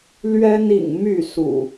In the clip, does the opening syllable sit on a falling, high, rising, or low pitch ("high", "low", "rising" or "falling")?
high